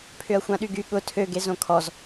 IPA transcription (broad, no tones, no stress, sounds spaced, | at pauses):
pʰ ʏ ɐ̯ xʷ ã ɗ y ɡ y ɠ ʊ tʰ ø ɡ e z õ kʰ ɔ z